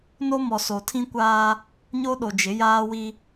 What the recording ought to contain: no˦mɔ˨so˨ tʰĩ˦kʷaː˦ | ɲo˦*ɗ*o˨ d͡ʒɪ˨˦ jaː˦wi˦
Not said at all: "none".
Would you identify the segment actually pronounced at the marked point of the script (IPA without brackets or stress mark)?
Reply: ɗ